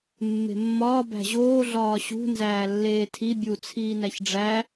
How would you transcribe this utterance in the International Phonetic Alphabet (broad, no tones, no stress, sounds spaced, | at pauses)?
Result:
mː e̤ mː ɒː b æ̤ ʑ oː ɮ ɒː ɕ ṳ n z æː lː eː tʰ i bʲ u t͡sʰ iː n æ ç ɖ͡ʐ æ